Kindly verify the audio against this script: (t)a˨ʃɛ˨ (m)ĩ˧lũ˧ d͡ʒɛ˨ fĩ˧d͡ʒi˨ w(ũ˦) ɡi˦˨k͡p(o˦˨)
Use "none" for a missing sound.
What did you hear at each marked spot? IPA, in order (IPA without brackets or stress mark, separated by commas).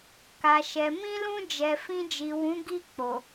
k, m, ũ˨˦, o˨